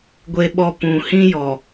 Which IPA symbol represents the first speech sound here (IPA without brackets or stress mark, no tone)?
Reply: ɡʷ